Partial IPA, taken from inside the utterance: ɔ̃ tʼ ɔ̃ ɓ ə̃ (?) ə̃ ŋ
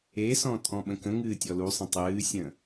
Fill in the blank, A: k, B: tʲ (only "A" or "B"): A